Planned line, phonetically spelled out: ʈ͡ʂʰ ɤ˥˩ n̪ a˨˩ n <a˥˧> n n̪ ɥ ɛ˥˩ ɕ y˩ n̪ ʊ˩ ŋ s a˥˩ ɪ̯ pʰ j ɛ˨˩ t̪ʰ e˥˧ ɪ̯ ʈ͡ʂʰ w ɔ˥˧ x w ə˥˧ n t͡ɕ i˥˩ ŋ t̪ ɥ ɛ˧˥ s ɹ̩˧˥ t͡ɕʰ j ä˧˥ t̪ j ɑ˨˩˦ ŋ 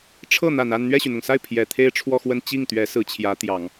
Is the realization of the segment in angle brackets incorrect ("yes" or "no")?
no